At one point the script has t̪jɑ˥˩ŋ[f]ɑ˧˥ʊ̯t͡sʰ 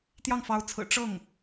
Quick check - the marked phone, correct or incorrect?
correct